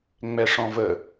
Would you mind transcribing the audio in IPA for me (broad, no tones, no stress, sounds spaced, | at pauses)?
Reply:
ŋ͡m ɛ ʂ ɔ̃ v ə